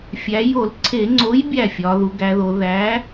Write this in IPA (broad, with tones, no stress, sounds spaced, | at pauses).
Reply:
fʲ æ˩˧ j o˧˩˧ l ǀʰ e˧˩˧ ŋ͡ǀ o˨˥ j bʲ æ˥˩ fʲ ɒ˩˧ ð u˩˧ ɡ æ˩˧ ð o˩˧ ð æ˨˥